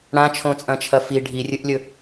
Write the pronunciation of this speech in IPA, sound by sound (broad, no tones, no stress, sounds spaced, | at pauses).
ɽ ã t͡ʃʰ õ t͡sʼ ɐ̃ t͡ʃʰ ɐ f i ɖʱ i rʲ ɨ ʔ lʲ ɵ